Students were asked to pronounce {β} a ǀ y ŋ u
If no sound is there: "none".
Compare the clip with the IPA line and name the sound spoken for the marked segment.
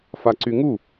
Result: f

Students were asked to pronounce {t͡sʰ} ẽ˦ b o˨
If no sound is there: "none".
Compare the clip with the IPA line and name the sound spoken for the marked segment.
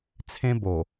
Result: t͡sʰ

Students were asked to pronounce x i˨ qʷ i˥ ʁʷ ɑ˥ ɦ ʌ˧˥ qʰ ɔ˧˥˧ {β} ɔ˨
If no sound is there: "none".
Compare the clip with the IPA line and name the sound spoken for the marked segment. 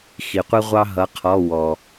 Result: w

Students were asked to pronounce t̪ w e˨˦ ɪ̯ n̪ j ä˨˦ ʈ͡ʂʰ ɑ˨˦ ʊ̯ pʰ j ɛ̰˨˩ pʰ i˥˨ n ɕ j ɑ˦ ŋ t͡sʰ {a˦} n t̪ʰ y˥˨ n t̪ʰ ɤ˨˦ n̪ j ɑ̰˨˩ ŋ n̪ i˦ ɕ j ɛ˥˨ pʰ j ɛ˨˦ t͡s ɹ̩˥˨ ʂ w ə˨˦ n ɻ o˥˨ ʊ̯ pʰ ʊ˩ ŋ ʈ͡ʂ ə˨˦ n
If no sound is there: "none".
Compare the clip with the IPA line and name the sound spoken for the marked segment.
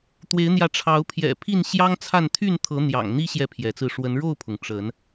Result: a˥˨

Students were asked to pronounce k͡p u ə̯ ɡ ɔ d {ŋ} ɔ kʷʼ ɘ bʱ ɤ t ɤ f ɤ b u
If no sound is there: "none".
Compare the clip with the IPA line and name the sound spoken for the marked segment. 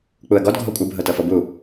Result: ɡʱ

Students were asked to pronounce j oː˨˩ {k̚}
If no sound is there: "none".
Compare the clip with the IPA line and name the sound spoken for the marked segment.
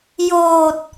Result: t̚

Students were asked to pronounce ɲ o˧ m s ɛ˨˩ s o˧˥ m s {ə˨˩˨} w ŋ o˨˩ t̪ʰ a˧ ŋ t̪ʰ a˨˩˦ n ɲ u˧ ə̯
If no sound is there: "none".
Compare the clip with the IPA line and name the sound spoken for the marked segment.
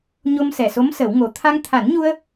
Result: ə˨˩˦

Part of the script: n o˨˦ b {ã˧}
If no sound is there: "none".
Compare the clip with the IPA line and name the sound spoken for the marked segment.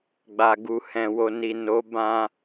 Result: ã˧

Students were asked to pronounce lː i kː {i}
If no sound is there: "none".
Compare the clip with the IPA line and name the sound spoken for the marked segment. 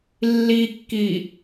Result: i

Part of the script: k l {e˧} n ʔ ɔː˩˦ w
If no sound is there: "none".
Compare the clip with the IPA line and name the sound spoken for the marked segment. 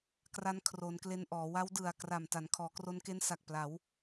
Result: e˧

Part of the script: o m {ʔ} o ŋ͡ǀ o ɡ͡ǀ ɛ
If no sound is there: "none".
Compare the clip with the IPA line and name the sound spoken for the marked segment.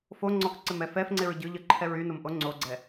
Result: ʔ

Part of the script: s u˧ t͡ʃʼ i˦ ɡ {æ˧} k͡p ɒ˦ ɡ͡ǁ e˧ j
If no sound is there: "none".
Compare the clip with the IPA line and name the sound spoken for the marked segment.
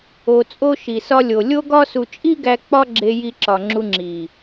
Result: æ˧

